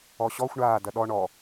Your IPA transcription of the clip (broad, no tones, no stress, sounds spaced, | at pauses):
ɔ ɕ ɔ xʷ ɳ aː d ɐ ɗ ɔ ɳ ɔ